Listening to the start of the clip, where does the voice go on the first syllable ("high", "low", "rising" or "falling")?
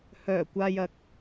low